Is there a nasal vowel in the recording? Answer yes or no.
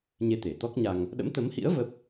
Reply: no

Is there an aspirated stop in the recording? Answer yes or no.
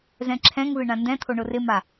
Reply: yes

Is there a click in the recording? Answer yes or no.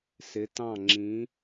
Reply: yes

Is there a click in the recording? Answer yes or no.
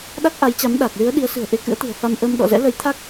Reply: no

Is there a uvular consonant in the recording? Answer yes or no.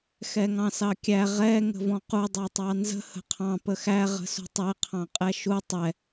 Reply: yes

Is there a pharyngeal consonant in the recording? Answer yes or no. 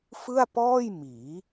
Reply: no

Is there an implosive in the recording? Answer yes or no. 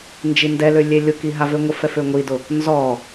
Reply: no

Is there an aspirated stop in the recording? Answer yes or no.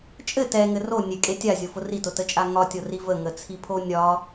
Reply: yes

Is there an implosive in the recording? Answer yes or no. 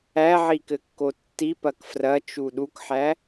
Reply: yes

